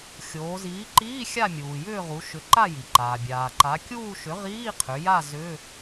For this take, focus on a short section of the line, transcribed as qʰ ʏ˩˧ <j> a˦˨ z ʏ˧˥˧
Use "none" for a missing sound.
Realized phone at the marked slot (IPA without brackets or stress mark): j